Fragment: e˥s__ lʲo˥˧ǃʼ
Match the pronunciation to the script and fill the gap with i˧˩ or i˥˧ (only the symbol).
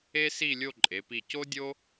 i˥˧